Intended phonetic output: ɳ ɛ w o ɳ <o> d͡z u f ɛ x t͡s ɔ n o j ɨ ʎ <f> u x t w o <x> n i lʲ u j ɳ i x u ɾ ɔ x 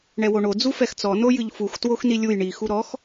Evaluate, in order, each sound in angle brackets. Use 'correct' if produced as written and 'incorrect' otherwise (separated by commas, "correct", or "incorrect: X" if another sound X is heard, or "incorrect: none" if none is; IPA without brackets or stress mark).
correct, correct, correct